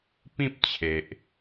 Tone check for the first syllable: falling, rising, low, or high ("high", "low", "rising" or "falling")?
high